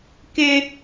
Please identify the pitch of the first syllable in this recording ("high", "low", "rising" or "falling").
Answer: high